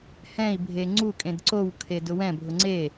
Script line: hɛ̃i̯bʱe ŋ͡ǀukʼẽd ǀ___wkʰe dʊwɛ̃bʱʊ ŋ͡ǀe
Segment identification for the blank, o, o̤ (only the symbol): o